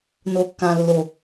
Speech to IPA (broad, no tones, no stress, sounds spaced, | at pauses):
n o kː ã lː o